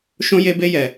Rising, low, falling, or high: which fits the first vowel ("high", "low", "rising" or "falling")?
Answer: high